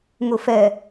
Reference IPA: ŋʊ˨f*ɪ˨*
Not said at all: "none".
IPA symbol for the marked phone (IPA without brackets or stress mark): ɛ˨